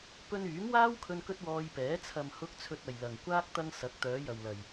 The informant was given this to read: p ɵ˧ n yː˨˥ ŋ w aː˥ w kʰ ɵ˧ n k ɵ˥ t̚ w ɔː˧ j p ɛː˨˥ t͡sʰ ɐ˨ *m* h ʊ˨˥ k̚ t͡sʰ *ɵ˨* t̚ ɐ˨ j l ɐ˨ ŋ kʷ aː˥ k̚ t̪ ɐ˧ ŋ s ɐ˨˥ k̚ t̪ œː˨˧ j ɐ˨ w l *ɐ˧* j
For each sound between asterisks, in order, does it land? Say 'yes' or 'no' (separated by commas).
yes, yes, no